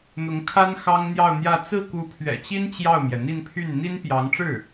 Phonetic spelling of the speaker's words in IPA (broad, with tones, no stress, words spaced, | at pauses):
n̪ʊ˧˥ŋkʰa˥n xɑ˥ŋn̪jɑ˥˧ʊ̯n̪jä˥˧ t͡sɹ̩˥˩ku˧˥pʰɥɛ̰˨˩t͡ɕi˥n t͡ɕjɑ˥˩ʊ̯mjɛ˩n̪i˥˧npʰy˥˩n n̪i˥npjɑ˧˥ŋʈ͡ʂɻ̩˥˩